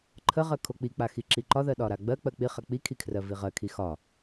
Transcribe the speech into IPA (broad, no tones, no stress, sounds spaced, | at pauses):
ǃʰ ə ʁ ɜ kʰ o k͡p i k͡p a x i ǁ i ǃ ɒ ð ɜ ɗ ɒ ɾ a ɡ͡b ɜ k͡p ɜ k͡p i χ a k͡p i kʰ i kʰ r ɜ v i ʁ ɜ kʰ i x ɒ